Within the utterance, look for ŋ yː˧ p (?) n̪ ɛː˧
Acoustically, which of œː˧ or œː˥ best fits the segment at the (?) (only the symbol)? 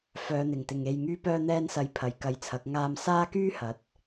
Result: œː˧